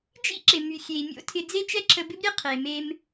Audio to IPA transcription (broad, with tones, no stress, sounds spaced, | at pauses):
d͡ʒ ḭ˥ ǁ ɪ˩ m y˩ xʲ e˩ i̯ mʲ o̰˥ tʰ ɪ˧ d͡z e˥ t͡ʃ ɛ˥ ǁʰ ə˧ b ɪ˥ b ɾʲ e˥ qʰ e˩ m e˧ m